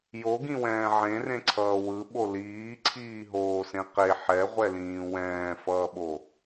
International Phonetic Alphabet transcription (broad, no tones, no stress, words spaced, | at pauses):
joɡĩwɛ̃ː ʕẽrẽǀʰʌː wɯɓo liːǀʰiːɦoːsẽ qe ħɛʁʷɛlĩː wɛ̃ːfʌːɓo